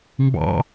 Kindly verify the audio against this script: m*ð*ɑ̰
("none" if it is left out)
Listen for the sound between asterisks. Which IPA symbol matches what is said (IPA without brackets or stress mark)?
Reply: b